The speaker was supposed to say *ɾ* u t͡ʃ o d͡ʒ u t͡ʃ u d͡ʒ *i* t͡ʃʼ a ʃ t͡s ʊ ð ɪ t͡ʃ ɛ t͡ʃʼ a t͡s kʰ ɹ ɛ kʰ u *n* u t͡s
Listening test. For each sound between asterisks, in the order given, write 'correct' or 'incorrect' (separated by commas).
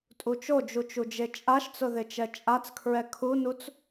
incorrect, incorrect, correct